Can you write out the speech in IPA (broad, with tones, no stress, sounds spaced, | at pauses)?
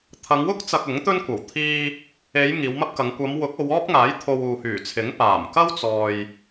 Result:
t̪ʰ ɐ˨˧ ŋ w ʊ˥ k̚ t͡s ɐ˨ k̚ ʊ˨˥ ŋ t̪ ɵ˥ n kʷ ɐ˨˩ w t̪ʰ iː˧ | e˨˧ j ŋ iː˨˧ w m ɐ˥ p̚ k ɐ˨˧ ŋ kʷ ɐ˨˧ m w ʊ˨˥ k̚ o˨˧ w ɔː˥ p̚ ŋ aː˨˥ j t̪ʰ o˧ w uː˨ h yː˨˩ t͡sʰ ɪ˨˥ ŋ p aː˨˩ m k ɐ˥ w t͡s ɔː˨ j